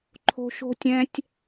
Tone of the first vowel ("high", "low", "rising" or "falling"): high